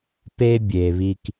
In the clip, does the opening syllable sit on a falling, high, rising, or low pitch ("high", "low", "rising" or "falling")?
high